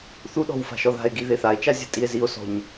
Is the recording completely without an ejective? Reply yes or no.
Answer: no